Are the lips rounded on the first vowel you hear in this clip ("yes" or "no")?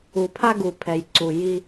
yes